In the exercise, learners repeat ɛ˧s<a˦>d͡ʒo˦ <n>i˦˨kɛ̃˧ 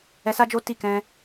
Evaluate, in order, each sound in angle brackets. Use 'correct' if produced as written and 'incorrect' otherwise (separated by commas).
correct, incorrect